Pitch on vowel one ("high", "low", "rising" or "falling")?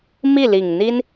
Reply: falling